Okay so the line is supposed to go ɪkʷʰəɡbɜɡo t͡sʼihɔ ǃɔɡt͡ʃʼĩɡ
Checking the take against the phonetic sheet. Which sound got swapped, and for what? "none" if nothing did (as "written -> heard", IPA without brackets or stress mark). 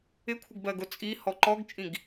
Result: none